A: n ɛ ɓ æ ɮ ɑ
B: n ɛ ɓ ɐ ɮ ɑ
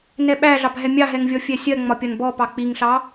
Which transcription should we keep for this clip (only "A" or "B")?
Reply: A